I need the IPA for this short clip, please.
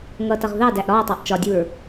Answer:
ŋʌtʌʁ ðɑdæʔ ɾɒɐ̯tˤɑʔ t͡ʃɒdʲuɹ

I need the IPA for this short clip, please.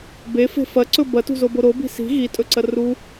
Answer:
befe̤ fɐǀɵ bɐtṳzobo ɾobi̤ si̤ ɣitʼɵǀɐ ru

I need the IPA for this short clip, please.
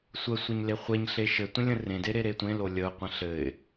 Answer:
sʷəsʷɘɲ leχʷeɲɬe ʃɘ tʷə̃lʲə̃rẽde ɾeɾetʷẽlo lʲəʊ̯qʷə̃ ɬɘɪ̯

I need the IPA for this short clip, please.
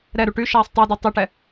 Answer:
ɾɛɾu ʈyʃɛːsˤ tˤudy tˤyʈɛ

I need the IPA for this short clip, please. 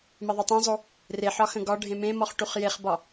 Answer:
meðˤetˤẽzˤo | reħɒ xə̃ɡɒɖʱẽ mẽmɔχ ʈuχjeχbɒ

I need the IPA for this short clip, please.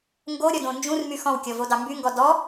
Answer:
ŋɡoɾʲɔdõ nd͡ʒũrmy xɔ̃wkʲɔvodɑ mbyŋɡɔ dɔ

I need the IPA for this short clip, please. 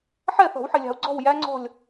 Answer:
ħɛ˥˨θɔ̤˨˩˦wħɪ˨lʲɑ̤˨u̯ ɡ͡ǀɔ̤˥˨w jæ˦˥ŋ͡ǀɔ̤˥˨lʲ

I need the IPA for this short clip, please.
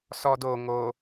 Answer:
sɔd o ŋo

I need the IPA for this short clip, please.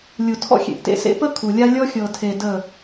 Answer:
lʲu˨tʰɔ̰˦xʲḛ˨ʔtḛ˦ sḛ˦pə˦ kʰu˨lʲa˦ lʲɔ˦xʲɤ˨tʰe˨ də˦˨

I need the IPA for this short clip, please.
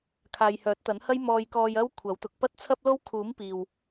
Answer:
kʰaː˨jhœː˨˥t̚t̪ɐ˨˥nhɐ˥j mɔː˧jkɔː˧j ɐ˥wkʷʰɐ˨˥wt̪ʊ˨˥k̚ pɐ˥t̚t͡sʰɐ˥p̚lo˥w kʰuː˨˥m piː˨w

